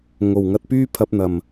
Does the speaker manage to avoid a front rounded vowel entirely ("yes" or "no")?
no